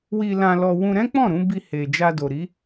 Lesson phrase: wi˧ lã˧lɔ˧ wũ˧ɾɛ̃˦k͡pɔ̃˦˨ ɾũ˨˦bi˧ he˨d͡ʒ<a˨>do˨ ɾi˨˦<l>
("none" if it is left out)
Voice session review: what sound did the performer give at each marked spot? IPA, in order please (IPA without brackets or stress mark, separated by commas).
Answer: a˧, none